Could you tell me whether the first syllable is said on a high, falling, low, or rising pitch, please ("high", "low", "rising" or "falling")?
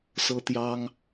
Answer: high